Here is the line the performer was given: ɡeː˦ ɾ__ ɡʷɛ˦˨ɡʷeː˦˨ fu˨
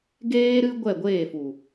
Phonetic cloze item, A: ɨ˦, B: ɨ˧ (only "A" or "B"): A